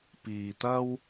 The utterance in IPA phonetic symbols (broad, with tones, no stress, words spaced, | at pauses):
piː˧t̪ɐ˥w